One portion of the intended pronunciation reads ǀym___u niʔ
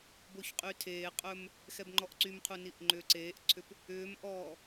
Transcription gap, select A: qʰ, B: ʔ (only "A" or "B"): A